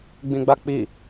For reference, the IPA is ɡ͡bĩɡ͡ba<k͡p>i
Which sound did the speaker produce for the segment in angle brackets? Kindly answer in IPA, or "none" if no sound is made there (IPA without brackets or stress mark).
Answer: k͡p